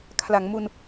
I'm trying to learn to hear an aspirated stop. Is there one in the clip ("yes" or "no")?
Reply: yes